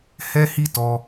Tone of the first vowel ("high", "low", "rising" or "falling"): high